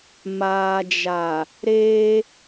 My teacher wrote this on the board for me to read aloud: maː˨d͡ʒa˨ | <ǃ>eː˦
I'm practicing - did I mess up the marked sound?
yes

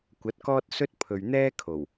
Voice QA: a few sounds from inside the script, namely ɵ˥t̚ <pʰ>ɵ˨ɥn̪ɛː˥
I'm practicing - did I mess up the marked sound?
no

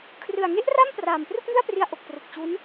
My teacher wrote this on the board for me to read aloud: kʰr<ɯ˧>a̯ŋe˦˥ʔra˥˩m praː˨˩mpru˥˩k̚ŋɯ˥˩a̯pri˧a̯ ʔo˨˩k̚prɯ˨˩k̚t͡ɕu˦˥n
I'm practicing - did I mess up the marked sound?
yes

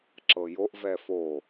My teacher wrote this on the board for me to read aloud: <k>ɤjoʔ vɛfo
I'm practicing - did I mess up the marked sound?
yes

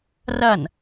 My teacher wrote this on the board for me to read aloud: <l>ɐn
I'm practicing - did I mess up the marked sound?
yes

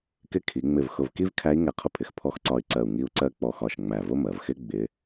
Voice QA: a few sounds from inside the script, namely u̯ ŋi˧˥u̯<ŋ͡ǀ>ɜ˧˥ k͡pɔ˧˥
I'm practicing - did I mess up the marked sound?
yes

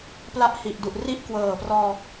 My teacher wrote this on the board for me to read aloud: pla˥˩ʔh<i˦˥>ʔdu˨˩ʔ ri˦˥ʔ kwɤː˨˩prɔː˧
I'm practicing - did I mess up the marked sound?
yes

